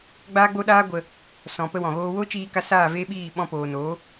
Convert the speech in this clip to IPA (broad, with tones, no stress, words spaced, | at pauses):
ɡ͡baː˦ɡ͡bo˦ɗaː˦ ɡʷə˧ | sɔ̃˨ pə˦wɔ̃˨ɣoː˦ wo˦t͡ʃiː˧ka˧ saː˦˨veː˦ɓiː˦˨ ɓɔ̃˧poː˨noː˨˦